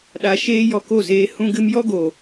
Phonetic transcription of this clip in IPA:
ɗ a˧ ʃ eː˦ j ɔ˧ k o˦˨ z eː˧ h ũ˧ ɡ ɨ˧ m j ɔ˦ ɡ o˨

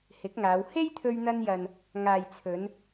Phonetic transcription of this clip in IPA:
h ɪ˨˥ k̚ ŋ aː˨˧ w h e˥ j t̪ʰ ɵ˧ ɥ n̪ ɐ˧ n j ɐ˨ n | ŋ aː˨ j t͡sʰ ɵ˨˧ n

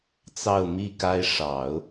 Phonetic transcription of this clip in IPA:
t͡s ɑ˥˧ ʊ̯ m i˥˩ k a˥ ɪ̯ ʂ ɑ˨˩˦ ʊ̯

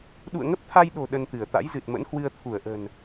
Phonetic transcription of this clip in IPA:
ɗ ṵ˧˨ ə̯ ŋ ə˦˥ p̚ t̪ʰ a˧ j ɗ o̤˨˩ ɗ ə˧ n t̪ ɨ˧˩ ə̯ t̪ a̰˧˥ j z ɨ˨˩ t̚ m ə̰˧˥ n h w ɨ˧ ə̯ t̪ʰ u˧˩ ə̯ ʔ ə̤˨˩ n

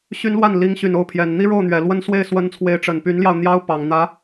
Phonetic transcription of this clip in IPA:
ɕ y˥ n l w a˥˩ n l i˧˥ ŋ ɕ y˨˩ n o˥˩ ʊ̯ pʰ j ɛ˨˩ n n̪ i˥ ɻ o˥˩ ʊ̯ n̪ ɥ ɛ˨˩ l w ə˥ n s w e˥˩ ɪ̯ s w ə˧˥ n t͡sʰ w e˧˥ ɪ̯ ʈ͡ʂ ə˨˩ n p y˧˥ n l j ɑ˧ ʊ̯ n̪ j ɑ˥ ʊ̯ p ɑ˨˩ ŋ n̪ ä˧˥

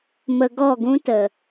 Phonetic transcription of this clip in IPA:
m ə˧ ɡ ɔ˦˨ ɡ ũ˦ t ə˨

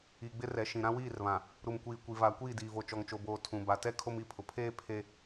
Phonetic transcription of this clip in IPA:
i˨ ɡ͡b ɪ˦ r ɛ˨ ʃ ĩ˨ ɾ ã˦ w iː˦˨ r β ã˨ | ɾ u˨ m kʷ iː˨ kʷ i˨ v aː˨ kʷ iː˦˨ d iː˨ v o˨ t͡ʃ ɔ˨ ŋ t͡ʃ o˨ b oː˨ tʰ ũ˨ b a˨ t ɛ˦ kʰ o˦ m i˦˨ pʰ ʊ˨ pʰ eː˦ pʰ e˦

